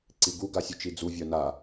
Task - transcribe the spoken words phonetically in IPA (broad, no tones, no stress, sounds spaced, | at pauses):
ǀ i ɡ u ɡ a sʲ u t͡ʃ i d͡z u vʲ œ n a